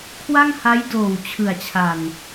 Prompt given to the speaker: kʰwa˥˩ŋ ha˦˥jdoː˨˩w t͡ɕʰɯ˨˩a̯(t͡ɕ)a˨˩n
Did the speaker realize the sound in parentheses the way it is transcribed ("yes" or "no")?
no